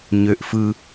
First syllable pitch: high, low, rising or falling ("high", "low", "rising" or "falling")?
low